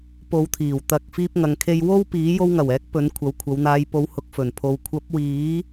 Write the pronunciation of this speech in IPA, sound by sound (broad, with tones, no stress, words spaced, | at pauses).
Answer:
po˨˧wt̪ʰiː˨˩w t̪ɐ˨k̚ fiː˧p̚ŋɐ˨ŋkʰe˧j wo˥wpiː˨˥ jo˧wŋɐ˨˩wɛː˨˥k̚ pɵ˨˧n kʷʰɐ˨˧wkʷʰɐ˨˧wn̪aː˧j po˨˧whʊ˨k̚ fɵ˨˩npʰo˨w kʷʰɐ˨˥p̚wiː˨˥